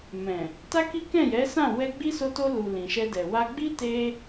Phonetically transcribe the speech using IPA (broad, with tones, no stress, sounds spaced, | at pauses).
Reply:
m ɛ̃˨ | t a˦ k i˦ k ɛ̃˦˨ j ɛ˨˦ s ã˦˨ w ɛ˧ ɡ͡b i˦ s o˧ t o˧ l u˨ l ĩ˨ ʃ ɛ˧ d ɛ˨ w a˧ ɡ͡b i˦ t e˧